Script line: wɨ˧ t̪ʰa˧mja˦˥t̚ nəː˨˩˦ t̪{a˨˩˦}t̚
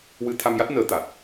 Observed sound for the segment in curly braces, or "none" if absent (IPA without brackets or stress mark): a˨˩